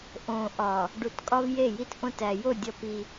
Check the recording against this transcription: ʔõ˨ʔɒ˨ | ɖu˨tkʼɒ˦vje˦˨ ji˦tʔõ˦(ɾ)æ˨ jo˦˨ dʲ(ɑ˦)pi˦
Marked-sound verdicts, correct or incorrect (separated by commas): incorrect, incorrect